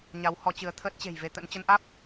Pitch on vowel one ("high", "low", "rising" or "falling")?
rising